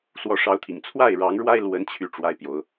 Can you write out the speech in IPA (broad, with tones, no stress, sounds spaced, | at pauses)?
s w ɔ˨˦ ʂ ɑ˨˦ ʊ̯ t̪ʰ ḭ˨˩ ŋ t͡sʰ w a˥˨ ɪ̯ ɻ ɑ˨˦ ŋ ɻ w a˦ ɪ̯ l w ə˨˦ n t͡ɕʰ y˥˨ ʈ͡ʂ w a˦ ɪ̯ p j o˨˦ ʊ̯